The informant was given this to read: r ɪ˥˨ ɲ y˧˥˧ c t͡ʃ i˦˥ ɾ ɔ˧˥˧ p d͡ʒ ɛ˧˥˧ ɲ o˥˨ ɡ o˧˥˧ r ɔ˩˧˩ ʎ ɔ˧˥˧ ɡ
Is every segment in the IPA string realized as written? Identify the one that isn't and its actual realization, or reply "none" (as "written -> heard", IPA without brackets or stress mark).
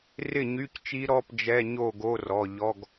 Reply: none